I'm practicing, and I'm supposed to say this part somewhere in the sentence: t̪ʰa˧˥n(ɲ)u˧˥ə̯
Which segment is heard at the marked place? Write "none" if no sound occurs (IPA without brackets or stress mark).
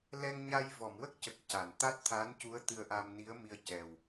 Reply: c